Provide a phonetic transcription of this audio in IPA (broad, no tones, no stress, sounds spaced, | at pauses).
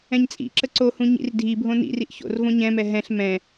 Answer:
ɛ̃ ɲ t͡sʼ ḭ ǁ ə ǀ o h ũ ɲ ḭ r dʱ i bʱ õ n ḭ r i ʔ ç o̰ r v õ ɲ ɛ̃ m ɛ ɦ ɛ̃ ɬ m ɛ̃